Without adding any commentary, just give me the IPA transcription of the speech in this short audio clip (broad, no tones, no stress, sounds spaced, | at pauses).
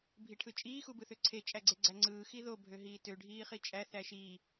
bʱ i ʈʰ ɯ t͡ʃʼ iː x u b ɯ θ ø ǀʰ e t͡ʃʼ æ ɡ͡ǀ e ɡ͡ǀ æ ŋ͡ǀ ɯː x i ð o bʱ ø ɦ iː t ø ɖʱ iː χ i t͡ʃʼ æ θ æ ʃ iː